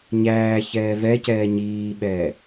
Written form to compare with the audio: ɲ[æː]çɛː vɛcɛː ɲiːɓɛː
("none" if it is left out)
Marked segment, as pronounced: æː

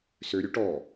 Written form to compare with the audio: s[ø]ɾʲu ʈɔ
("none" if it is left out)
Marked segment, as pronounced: ø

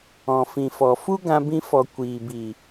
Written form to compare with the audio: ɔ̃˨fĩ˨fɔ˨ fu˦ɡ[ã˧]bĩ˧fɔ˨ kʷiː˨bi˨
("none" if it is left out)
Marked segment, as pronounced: ã˧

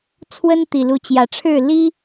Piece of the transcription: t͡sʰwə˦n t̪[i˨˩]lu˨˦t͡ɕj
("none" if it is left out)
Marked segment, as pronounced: i˨˩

